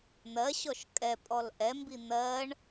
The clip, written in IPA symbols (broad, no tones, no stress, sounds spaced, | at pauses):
n̪ ɜ ɕ ɔ ʃ kʼ ɛ pʼ ɔ l ʔ ɛ m b i n̪ ɜ ɳ